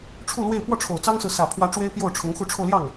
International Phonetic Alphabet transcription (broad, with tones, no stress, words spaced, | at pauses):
ʈ͡ʂʰu˥˧lwe˥˧ɪ̯ pwɔ˥˩ʈ͡ʂʰo˨˩ʊ̯t͡sɑ˥ŋsɹ̩˨ sä˨˩pʰwä˧˥ ʈ͡ʂwe˥ɪ̯pjo˥˩ʊ̯ʈ͡ʂʰʊ˧˥ŋ xu˧˥ʈ͡ʂʰo˧ʊ̯ljɑ˥˩ŋ